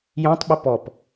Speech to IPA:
j ɔ̃ tˤ ɓ ə p ɔ p

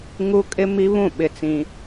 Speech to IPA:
ŋ u˦ kʼ ɪ˦ m i˦ β ũ˦˨ ɓ ɪ˦ t͡s ĩ˦

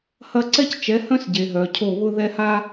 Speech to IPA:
h ɐ˦ ǀ ɛ˦ c t͡ʃ ɛ˨˦ h œ̃˦ s ɟ e˨ ɦ œ˨ cʰ o˦˨ β ʊ˦ ð ɛ˦ h a˦

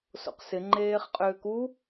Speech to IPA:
s o̰ q s ɪ ŋ͡ǃ eː χ qʼ ʏː k u

